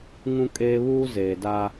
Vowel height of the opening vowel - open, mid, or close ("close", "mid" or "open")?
close